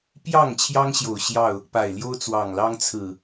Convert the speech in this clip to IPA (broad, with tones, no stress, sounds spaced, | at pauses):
p j ɑ˥˨ ŋ t͡ɕʰ j ɑ˦ ŋ ɕ j o˨˩ ʊ̯ ɕ j ɑ˥˨ ʊ̯ | p a˨˩ ɪ̯ l j o˦ ʊ̯ t͡s w ɑ˨˩ ŋ l ɑ˦ ŋ t͡sʰ ɹ̩˨˩